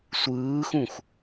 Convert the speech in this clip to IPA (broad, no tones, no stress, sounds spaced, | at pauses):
sʷ ɯː x ũ x